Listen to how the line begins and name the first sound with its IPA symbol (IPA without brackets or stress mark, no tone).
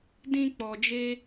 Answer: d